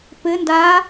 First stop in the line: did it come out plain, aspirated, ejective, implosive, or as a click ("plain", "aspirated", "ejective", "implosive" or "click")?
plain